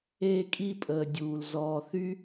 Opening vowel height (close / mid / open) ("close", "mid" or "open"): mid